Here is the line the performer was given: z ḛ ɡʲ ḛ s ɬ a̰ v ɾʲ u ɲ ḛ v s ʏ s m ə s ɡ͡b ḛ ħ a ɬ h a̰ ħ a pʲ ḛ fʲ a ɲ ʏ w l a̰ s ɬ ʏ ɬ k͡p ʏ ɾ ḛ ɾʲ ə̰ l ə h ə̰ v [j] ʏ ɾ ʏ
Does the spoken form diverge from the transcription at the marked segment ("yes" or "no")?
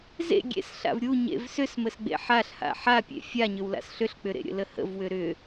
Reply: yes